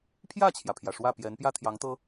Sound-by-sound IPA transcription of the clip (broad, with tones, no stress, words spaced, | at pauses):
pʰjä˥˩t͡ɕʰjä˩pʰjä˩ ʂwä˥˩pjɛ˧˥n pjä˥˩t̪ʰjɑ˧˥ŋt̪ɤ˥